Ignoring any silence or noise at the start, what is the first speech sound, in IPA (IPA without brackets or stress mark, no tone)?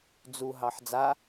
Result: d͡z